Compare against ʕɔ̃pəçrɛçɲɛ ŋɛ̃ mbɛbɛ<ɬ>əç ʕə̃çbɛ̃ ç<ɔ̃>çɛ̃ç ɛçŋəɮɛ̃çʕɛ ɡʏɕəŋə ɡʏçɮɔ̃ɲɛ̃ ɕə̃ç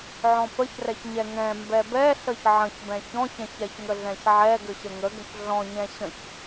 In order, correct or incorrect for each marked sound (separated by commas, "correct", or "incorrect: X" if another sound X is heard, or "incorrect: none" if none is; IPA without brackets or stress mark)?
correct, correct